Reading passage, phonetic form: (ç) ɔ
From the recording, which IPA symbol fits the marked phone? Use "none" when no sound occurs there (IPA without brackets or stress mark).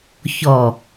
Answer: ç